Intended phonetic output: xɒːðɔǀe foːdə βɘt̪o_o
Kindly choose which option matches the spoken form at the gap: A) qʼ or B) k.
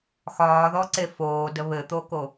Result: B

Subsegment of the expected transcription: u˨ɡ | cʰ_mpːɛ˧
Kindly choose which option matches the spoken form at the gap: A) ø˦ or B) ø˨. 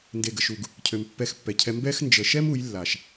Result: B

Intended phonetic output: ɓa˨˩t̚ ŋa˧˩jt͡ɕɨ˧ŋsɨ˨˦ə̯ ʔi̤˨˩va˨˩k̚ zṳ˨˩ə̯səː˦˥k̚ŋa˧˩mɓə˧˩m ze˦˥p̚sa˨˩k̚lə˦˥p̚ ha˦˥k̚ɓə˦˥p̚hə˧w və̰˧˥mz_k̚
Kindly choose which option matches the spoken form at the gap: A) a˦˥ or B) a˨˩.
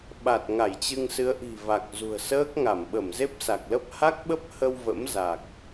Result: B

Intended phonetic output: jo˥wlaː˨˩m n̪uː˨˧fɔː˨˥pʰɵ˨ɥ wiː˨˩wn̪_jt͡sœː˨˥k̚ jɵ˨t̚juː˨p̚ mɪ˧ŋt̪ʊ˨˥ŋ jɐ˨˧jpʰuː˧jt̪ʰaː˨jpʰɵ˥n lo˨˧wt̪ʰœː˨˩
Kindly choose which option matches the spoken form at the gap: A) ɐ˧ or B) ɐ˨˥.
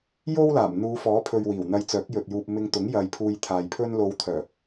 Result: A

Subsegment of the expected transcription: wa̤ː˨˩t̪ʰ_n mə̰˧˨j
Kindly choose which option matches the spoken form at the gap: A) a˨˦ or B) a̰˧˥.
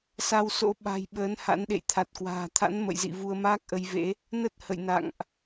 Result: B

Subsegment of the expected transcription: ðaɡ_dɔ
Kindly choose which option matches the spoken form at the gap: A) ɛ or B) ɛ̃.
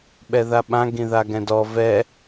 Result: B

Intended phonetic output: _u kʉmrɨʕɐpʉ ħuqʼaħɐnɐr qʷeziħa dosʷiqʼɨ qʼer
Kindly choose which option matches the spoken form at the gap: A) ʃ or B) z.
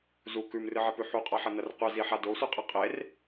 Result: B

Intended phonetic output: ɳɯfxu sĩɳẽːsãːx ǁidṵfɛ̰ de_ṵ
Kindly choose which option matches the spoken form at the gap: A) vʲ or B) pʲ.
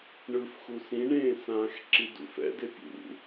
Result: B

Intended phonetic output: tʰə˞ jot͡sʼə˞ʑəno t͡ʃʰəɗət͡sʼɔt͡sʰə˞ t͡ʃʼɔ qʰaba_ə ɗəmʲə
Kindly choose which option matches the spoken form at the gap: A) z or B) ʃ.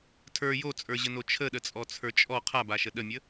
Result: B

